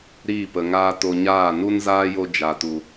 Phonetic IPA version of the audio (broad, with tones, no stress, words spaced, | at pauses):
ɾiː˦˨pə˨ŋaː˦ to˧ɲaː˦˨ nu˦nzaː˦jo˧ d͡ʒa˨tu˨